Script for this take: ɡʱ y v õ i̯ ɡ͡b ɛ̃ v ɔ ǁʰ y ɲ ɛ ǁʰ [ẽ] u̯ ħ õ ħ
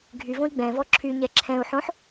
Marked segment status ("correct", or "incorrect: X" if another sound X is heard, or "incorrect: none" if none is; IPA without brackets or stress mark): incorrect: ɛ̃